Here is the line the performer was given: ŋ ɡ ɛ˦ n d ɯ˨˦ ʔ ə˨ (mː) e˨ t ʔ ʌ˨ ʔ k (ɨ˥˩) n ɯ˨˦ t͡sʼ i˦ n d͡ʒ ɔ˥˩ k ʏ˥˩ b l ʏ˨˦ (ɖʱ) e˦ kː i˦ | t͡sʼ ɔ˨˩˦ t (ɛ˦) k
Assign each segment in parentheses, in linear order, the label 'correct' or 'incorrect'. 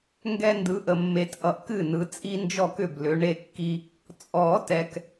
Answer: correct, correct, incorrect, incorrect

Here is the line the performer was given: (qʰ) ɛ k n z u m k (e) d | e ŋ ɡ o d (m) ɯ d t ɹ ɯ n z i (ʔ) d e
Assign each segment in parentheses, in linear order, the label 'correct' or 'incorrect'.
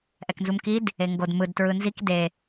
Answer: incorrect, incorrect, correct, incorrect

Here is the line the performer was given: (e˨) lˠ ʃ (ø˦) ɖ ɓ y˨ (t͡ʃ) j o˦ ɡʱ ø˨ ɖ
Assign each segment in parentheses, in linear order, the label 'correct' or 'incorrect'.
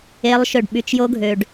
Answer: incorrect, incorrect, correct

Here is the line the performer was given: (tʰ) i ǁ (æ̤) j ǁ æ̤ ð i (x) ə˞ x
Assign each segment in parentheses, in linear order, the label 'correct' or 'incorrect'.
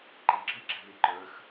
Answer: incorrect, incorrect, incorrect

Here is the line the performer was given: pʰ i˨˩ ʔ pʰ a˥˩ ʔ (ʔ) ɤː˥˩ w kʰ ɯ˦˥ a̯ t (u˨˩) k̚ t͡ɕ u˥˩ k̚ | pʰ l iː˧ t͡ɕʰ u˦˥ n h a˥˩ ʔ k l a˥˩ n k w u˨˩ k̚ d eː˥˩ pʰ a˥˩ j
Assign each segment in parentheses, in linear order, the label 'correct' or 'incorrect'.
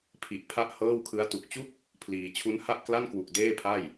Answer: incorrect, correct

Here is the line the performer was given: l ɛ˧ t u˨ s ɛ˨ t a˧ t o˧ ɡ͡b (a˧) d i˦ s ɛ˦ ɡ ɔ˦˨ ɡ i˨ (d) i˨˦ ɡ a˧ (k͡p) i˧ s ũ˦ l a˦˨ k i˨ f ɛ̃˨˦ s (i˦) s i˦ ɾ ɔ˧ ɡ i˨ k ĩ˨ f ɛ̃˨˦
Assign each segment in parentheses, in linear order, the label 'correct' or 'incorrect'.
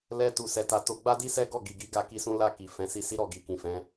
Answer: incorrect, incorrect, incorrect, incorrect

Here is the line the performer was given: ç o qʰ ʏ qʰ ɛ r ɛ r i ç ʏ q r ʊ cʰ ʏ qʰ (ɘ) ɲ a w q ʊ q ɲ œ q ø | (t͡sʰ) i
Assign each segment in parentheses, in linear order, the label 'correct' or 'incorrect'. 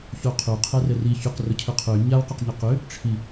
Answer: incorrect, incorrect

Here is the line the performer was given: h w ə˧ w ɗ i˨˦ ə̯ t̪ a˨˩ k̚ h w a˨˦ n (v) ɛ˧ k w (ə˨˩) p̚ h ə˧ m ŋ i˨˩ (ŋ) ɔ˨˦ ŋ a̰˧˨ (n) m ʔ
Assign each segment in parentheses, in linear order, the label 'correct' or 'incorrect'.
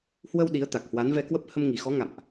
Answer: correct, incorrect, incorrect, incorrect

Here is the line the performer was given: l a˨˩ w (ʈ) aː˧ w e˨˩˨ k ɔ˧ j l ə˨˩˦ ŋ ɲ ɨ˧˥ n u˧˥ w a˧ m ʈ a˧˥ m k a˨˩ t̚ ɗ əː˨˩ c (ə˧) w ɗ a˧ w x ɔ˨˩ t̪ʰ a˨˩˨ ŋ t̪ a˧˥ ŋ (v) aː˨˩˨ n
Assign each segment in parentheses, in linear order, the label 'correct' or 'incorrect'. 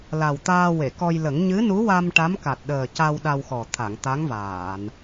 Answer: incorrect, incorrect, correct

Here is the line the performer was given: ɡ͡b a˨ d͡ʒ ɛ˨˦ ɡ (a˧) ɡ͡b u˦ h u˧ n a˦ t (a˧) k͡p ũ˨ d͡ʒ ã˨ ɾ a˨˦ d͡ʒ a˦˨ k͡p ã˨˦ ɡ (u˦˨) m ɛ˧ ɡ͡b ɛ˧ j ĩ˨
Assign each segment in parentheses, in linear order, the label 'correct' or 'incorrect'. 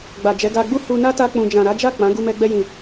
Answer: correct, correct, incorrect

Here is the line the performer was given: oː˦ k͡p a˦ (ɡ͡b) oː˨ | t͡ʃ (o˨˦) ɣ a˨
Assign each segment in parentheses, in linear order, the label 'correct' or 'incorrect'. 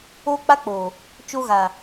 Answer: incorrect, incorrect

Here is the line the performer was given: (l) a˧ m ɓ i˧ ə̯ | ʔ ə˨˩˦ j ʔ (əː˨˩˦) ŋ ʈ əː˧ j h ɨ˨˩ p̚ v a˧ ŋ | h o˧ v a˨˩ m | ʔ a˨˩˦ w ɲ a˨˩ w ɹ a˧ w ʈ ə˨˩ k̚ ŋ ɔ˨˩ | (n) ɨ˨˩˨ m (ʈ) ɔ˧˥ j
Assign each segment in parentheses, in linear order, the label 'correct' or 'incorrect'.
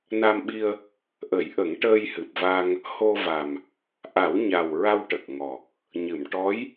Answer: incorrect, incorrect, incorrect, correct

